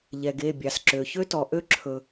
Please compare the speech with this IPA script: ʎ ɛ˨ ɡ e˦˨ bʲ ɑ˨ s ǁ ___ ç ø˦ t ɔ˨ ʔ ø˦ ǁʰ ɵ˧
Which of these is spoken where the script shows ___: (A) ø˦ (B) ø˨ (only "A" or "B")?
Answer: B